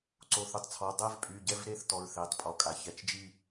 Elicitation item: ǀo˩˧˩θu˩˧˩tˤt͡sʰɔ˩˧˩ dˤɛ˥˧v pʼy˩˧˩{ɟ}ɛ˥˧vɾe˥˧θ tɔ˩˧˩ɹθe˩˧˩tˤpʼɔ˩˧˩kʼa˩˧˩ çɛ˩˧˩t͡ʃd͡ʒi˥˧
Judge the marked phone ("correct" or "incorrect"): correct